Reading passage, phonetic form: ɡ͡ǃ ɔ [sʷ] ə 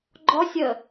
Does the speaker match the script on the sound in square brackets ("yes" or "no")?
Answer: no